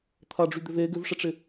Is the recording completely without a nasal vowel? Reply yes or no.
yes